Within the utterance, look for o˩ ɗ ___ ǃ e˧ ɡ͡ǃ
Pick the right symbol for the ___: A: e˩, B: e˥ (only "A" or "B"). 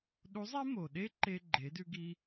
B